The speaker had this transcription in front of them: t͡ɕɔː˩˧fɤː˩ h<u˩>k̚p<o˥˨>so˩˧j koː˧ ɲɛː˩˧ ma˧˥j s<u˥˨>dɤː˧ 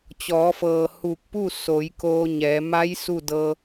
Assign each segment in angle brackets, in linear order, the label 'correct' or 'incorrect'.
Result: incorrect: u˧˩, incorrect: u˥˨, correct

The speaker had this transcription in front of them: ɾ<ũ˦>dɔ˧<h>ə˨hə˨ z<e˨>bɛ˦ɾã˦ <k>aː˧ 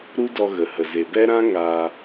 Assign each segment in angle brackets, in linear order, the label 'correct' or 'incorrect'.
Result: incorrect: u˦, incorrect: ɣ, correct, incorrect: ŋ

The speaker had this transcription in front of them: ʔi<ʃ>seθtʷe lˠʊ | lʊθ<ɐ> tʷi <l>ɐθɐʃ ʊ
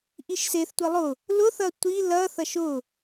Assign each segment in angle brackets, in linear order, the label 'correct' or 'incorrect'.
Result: correct, correct, correct

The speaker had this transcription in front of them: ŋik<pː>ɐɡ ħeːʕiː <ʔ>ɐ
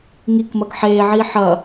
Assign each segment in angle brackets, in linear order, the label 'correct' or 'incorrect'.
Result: incorrect: m, incorrect: ħ

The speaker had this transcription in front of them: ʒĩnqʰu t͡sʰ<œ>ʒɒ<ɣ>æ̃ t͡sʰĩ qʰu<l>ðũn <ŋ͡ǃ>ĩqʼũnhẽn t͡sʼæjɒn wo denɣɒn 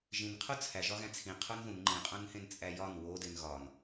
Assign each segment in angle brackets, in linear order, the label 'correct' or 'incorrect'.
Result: incorrect: æ, correct, incorrect: n, correct

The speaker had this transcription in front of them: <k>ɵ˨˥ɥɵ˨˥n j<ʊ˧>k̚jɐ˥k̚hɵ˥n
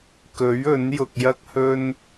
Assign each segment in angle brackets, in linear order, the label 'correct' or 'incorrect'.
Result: correct, correct

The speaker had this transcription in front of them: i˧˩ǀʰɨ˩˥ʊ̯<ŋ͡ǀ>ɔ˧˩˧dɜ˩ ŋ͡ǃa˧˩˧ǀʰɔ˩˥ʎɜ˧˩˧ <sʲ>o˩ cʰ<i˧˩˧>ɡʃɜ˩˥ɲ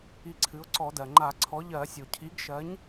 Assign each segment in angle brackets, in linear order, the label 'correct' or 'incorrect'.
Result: incorrect: ǀ, correct, incorrect: i˩˥

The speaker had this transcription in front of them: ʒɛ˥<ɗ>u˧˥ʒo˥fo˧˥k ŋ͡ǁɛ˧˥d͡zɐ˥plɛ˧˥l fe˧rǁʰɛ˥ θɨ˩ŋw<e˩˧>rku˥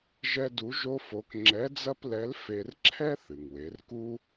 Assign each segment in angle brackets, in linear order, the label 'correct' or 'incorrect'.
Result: incorrect: d, correct

